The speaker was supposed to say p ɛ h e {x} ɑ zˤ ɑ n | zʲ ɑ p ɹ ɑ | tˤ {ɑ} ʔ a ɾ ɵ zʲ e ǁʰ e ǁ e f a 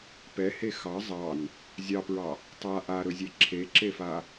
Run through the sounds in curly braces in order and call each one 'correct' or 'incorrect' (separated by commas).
correct, incorrect